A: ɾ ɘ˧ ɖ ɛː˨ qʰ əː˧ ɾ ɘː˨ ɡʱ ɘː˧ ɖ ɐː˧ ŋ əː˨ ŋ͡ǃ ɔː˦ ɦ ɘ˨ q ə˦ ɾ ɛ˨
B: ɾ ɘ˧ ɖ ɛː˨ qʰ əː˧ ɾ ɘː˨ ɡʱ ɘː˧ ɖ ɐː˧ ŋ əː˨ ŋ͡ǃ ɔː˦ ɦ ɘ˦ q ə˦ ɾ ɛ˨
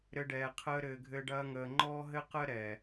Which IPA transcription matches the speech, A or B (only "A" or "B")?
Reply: B